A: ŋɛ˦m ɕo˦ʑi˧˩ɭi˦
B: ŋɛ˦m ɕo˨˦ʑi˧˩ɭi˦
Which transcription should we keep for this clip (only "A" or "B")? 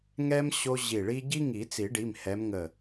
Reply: A